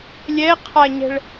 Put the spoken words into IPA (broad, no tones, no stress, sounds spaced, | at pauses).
lʲ ɛ qʰ a ɲ ɛ̤ ɭ